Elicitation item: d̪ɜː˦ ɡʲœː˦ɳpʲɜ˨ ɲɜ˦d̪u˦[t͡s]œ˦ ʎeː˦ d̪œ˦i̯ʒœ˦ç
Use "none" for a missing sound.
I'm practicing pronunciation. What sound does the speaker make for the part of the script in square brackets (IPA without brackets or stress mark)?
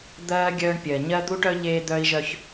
ʈ